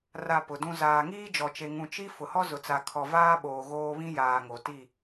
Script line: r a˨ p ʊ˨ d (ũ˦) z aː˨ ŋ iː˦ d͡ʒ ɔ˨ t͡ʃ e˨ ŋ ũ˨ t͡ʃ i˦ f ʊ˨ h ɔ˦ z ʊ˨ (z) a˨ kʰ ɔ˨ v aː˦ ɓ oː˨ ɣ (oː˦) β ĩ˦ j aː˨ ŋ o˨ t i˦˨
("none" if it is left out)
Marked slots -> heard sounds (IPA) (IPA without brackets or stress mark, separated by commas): ũ˦, t͡s, oː˦